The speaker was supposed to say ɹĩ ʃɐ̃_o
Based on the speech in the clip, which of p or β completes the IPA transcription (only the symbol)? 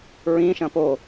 p